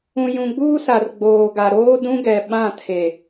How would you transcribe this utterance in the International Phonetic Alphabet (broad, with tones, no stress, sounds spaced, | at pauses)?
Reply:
ũ˨ j ũ˨ ɡ͡b uː˦ s a˨ r ɡ͡b oː˨ ɡ a˨ ɾ oː˦ d ũ˦ ɡ ɛ˨ ɓ ã˦˨ tʰ e˨